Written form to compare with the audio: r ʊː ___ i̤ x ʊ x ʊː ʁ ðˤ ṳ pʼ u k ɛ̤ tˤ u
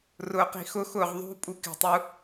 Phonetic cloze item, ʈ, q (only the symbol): q